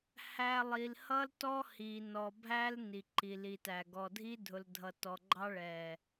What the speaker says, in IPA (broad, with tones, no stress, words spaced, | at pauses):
hæ˨ lˠi˨lhʌ˦l tɔ˦hi˨ nɔ˨bʱæ˦l ni˨ǃi˨li˨tæ˨ ɡɔ˨dʱi˦ dʱʊ˨ldʱʌ˨tɔ˨ɡ͡ǃɑ˦ ɭɛ˨